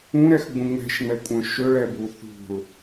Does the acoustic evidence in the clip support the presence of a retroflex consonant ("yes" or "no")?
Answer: yes